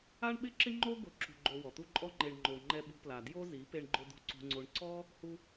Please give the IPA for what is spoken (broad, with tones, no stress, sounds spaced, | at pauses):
a˦ ɳ ɓ ɪ˦ ǁ ɪ˦ ŋ͡ǃ o˦ ɡ ʊ˨˦ ǁ ṳ˨ ɡ͡ǃ o˨ w ɔ˨ t̪ u˦ ǃʼ ɔ˦ ŋ͡ǃ e˨ ɳ ŋ͡ǃ o˨ ŋ͡ǃ ɛ˧ ɓ ṳ˧ p l a˨ d j o˦ z i˨˦ p e˧ ɳ ɡ͡ǃ ʊ˧ d ṳ˧ ǀ ṳ˧ ŋ͡ǀ o˧ ɳ ǀ ɔ˦ | h u˧